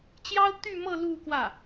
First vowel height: low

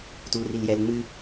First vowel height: high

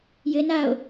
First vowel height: mid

